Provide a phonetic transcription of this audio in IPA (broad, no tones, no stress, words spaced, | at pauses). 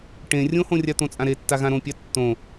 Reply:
ʈẽ rʲõhõrʲa t̪õt͡sʼãɾetːa ɣãɾõpʲa tːõ